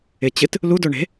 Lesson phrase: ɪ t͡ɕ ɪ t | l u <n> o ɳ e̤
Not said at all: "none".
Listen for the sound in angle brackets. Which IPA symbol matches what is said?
d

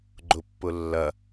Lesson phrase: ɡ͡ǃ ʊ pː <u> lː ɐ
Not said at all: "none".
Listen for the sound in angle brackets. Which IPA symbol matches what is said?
ʊ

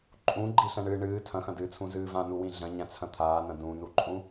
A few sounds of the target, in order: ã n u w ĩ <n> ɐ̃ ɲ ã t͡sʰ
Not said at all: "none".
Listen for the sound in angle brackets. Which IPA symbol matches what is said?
ɮ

